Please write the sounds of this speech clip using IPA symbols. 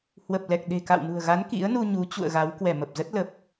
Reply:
h w ə˨˩ p̚ l ɛ˨˩ k̚ ɗ e̤˨˩ k a̰˧˨ w n ṳ˨˩ ə̯ ɣ a˨˦ n k ḭ˧˥ ə̯ n u˧ ɲ u˨˦ t͡ɕ ṵ˧˨ ə̯ ɣ a˨˦ w k w ɛ˧˩ m ə˨˩ p̚ z ə˦˥ t̚ l ə˨˩ p̚

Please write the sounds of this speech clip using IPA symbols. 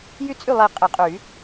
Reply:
j y˥˩ t͡sʼ y˥˩ lˠ i˨˩˦ qʼ ɛ˨˩˦ qʼ y˨˩˦

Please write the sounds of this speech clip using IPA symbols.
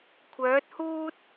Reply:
kʷʰ œː˨˥ t̚ h uː˥ t̚

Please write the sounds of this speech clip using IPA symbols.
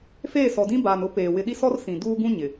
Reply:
f eː˦˨ s ɔ˨ d ĩ˦ b aː˨ n ʊ˦ p eː˨ w ɪ˨ ɗ i˦ s ɔ˦ r s ĩ˨ d uː˦ ɡ ũ˦ ɲ ɪ˨

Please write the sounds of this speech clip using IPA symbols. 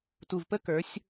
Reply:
t u˨ v p ə˦ k ə˞˨˦ sʲ

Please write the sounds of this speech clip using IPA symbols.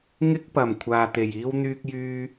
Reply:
ŋ ɪ˥ k̚ p ɐ˨˩ m kʷʰ aː˨ t̪ e˨˩ j iː˥ w n̪ yː˥ k̚ j yː˥

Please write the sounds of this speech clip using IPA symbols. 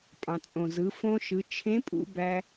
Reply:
pʼ ɑ̃˩ t͡sʼ õ˩ z ɯ˩˧ f õ˧ ʃ ɯ˩˧ t͡ʃʰ ẽ˧˥ pʼ ṵ˧ b æ˧

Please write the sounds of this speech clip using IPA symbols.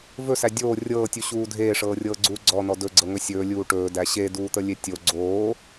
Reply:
v ɵ s æ dʲ oː rʲ ɤː tʲ u ɕ uː dʱ eː ʂ ɤː rʲ ɤː ɡ͡ǀ uː ɡ͡ǀ ɔ n ɔ d ɵ ɡ͡ǀ ɤ ŋ ɵ sʲ ɵː lʲ uː ʈ ɵː d æ ɕ e d uː t̪ ə lʲ e tʲ o ɡ͡ǀ oː

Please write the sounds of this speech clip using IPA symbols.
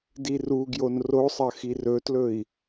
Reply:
d i r u ɡ j o n r o sˤ ɐ x i r ɵ t l ɵ i̯

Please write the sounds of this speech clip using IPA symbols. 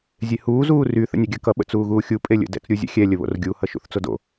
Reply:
zʲ e h uː z uː r y θ ə̰ nʲ ɛ ɡʲ ɜ k ʌ ɓ ə̰ t͡s uː ɣ uː xʲ u pʼ e lʲ ə̰ d ɛ̰ t͡s ɾʲ u zʲ ə̰ xʲ ɛ lʲ ə β o̰ r ɡʲ u h ʌ ʃ ṵ θ t͡s o d o̰

